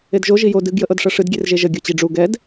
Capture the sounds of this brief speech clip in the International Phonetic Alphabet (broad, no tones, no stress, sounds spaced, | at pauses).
e d ʒ o ʒ i j o d ɨ ɡ j ə ʔ ɤ d ʂ ɤ ʂ ɨ d ɡʲ e r ʒ e ʒ ə ɡʲ ɤ t͡ɕ i ɖ͡ʐ u ɡ ɛ d